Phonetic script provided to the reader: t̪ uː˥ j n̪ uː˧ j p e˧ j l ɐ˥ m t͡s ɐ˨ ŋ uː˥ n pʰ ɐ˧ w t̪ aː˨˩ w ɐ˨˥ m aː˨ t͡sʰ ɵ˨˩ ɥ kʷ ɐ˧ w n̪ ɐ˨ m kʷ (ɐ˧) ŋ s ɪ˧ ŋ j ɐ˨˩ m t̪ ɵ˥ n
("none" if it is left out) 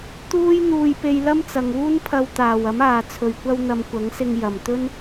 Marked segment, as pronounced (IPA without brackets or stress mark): ɐ˨˥